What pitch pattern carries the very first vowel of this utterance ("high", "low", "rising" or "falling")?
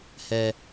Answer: high